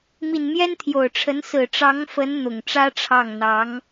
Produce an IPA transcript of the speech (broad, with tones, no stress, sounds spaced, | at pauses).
m i˨˩ n m j ɛ˥ n t̪ʰ j o˨˩ ʊ̯ ʈ͡ʂʰ ə˧˥ n s ɹ̩˨˩ ʈ͡ʂ ɑ˧˥ ŋ f ə˧˥ n n̪ ʊ˨˩ ŋ ʈ͡ʂ ä˥ ʈ͡ʂʰ ɑ˥˩ ŋ n̪ ɑ˧˥ ŋ